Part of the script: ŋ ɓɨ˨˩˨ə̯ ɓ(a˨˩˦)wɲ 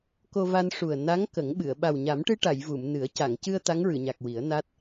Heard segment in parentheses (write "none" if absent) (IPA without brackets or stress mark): a˨˩